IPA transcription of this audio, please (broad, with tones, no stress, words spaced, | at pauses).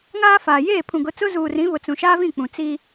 ŋaː˦faː˨ jeː˦˨pʰũ˨ɡʊ˨˦t͡sʊ˦ zuː˨ rĩ˨˦βʊ˨ t͡sũ˨ʃaː˦vĩ˦˨k͡pũ˨ t͡si˦